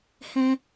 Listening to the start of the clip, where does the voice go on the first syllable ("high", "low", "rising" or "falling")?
low